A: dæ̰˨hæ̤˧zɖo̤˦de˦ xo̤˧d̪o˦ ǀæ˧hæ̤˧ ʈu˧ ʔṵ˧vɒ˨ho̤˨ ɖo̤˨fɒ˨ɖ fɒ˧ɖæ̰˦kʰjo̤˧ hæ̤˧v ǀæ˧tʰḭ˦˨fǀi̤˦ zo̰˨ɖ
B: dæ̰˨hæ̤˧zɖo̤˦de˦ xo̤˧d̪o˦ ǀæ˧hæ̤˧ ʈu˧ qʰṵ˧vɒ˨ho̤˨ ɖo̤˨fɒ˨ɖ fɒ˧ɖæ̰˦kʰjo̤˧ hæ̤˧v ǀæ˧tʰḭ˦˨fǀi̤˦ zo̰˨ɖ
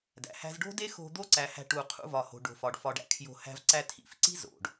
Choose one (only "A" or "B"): B